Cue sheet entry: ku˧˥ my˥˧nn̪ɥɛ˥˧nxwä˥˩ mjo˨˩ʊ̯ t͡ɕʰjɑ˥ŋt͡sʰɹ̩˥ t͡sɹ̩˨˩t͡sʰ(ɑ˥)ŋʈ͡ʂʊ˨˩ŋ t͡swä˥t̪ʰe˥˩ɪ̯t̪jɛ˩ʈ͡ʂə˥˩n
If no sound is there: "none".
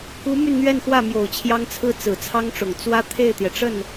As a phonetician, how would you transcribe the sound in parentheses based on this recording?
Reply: ɑ˥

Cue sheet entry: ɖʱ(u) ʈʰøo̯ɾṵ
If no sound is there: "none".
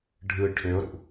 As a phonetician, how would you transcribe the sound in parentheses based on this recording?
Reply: ɯ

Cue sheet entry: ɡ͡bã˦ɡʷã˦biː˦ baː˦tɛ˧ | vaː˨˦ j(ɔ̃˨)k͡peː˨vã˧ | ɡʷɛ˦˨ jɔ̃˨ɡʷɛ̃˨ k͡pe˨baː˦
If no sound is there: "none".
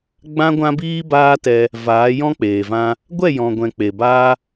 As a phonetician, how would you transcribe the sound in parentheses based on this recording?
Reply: ɔ̃˦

